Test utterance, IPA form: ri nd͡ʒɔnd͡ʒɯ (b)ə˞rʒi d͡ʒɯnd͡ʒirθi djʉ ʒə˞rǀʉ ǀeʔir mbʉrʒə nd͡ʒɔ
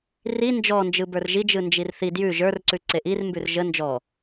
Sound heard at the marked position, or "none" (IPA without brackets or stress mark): b